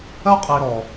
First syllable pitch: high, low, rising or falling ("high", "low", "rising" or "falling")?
high